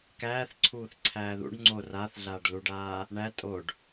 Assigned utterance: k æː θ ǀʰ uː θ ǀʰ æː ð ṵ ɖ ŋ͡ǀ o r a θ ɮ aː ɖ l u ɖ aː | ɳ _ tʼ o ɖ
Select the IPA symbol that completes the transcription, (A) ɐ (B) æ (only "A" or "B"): B